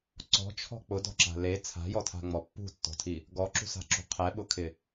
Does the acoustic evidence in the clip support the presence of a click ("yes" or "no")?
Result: yes